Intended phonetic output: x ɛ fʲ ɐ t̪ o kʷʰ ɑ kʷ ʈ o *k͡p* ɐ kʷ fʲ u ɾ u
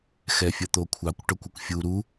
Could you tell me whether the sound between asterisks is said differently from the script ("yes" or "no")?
yes